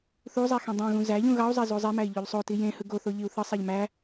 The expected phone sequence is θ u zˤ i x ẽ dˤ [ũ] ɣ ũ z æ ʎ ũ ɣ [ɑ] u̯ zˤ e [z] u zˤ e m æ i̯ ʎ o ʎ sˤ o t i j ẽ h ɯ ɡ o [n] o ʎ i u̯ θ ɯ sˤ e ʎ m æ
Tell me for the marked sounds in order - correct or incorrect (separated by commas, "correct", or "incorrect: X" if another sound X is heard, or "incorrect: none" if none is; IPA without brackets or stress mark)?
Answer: correct, correct, correct, incorrect: θ